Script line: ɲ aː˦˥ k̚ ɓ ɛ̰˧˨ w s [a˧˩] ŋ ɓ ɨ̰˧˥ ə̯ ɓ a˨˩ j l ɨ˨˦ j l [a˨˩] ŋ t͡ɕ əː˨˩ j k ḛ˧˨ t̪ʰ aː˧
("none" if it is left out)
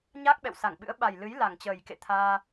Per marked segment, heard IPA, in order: a˧˩, a˨˩

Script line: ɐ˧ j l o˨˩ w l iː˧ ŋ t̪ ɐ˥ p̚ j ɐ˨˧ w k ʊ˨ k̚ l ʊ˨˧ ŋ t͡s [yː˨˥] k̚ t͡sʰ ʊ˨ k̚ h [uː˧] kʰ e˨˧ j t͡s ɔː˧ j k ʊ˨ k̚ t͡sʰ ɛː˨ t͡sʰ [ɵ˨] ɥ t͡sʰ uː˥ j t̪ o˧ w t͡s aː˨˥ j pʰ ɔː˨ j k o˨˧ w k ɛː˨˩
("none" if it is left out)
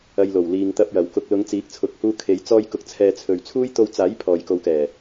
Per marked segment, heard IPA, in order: iː˨˥, uː˧, ɵ˨

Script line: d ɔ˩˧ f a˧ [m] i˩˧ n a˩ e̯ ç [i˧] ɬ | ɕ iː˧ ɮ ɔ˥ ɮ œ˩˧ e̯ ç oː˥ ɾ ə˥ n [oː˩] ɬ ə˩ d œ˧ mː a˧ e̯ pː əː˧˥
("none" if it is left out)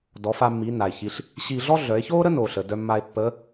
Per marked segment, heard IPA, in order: mː, i˩˧, oː˩

